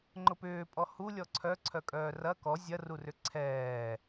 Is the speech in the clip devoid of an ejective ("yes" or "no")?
no